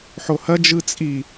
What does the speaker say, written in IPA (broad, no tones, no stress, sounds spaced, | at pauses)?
ħ o h ɐ d͡ʒ ɯ t͡sʼ i